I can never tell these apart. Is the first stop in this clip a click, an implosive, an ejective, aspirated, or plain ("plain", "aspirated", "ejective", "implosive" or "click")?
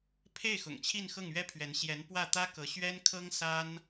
aspirated